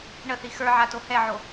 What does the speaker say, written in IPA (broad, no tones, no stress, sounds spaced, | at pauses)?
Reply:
ɳ ə θ i x ə˞ ʕ a t o h ɛ ʕ o